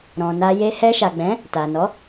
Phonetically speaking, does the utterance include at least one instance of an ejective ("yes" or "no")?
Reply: no